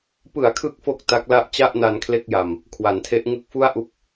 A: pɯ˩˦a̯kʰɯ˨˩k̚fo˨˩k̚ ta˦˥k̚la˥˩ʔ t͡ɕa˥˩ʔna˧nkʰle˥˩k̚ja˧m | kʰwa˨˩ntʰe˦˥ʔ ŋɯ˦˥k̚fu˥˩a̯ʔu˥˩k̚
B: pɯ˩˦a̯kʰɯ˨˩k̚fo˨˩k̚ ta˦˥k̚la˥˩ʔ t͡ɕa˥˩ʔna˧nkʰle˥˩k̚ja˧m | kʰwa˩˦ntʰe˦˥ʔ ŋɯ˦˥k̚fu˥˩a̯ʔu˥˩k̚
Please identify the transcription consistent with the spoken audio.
B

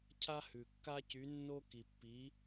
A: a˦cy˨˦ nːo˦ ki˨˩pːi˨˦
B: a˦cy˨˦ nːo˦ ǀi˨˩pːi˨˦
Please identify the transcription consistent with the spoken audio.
A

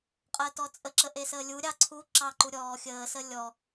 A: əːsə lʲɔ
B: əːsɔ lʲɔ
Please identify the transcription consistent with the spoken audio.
A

